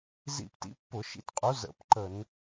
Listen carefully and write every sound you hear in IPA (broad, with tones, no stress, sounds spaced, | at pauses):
z ḭ˧˩˧ p t ḭ˨˦ pː ʊ˧˩˧ ʃ ḭ˨˦ t qʼ u˨˦ z ə̰˧˩˧ p ǃ ə˧˩˧ n